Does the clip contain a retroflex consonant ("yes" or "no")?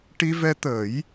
yes